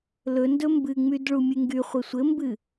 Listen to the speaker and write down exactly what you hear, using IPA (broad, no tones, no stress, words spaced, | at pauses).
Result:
lɵndɵ mbɨŋ͡myd ɭumʲɨŋɡyχʷɘ sʷɘmbɨ